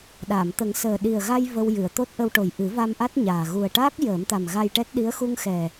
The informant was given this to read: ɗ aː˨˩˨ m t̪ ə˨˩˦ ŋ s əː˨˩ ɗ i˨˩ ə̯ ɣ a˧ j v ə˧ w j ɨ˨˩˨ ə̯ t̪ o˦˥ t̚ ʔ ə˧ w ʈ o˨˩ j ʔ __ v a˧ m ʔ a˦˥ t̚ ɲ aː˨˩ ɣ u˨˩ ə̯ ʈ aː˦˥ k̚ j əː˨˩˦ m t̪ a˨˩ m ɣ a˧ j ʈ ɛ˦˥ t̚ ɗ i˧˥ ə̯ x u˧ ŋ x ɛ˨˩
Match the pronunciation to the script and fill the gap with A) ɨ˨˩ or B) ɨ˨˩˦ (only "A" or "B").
B